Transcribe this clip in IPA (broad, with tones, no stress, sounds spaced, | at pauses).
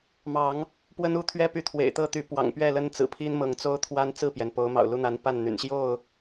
m ɑ˨˦ ŋ | p w ə˦ n u˥˨ t̪ʰ ɥ ɛ˦ p y˨˦ t̪ʰ w ḛ˨˩ ɪ̯ t̪ ɤ˥˨ t̪ y˨˦ p w ɑ̰˨˩ ŋ p ɥ ɛ˥˨ l ə˦ n t͡s ɹ̩˨˩ pʰ i˦ n m ɤ˨˦ ŋ t͡s o˦ ʊ̯ t̪ʰ w a˦ n t͡s ɹ̩˥˨ p j ɛ˩ n p o˨˦ ʊ̯ m ɑ̰˨˩ ʊ̯ l u˦ n̪ a˨˦ n p a˥˨ n n̪ y̰˨˩ n ɕ j o˥˨ ʊ̯